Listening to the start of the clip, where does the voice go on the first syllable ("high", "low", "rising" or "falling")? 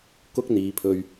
high